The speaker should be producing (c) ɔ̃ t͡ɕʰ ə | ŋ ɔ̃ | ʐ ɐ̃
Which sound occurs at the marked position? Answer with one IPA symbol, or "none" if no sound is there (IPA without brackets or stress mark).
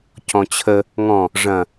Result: c